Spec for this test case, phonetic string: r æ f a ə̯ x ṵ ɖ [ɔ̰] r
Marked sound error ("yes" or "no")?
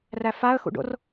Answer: yes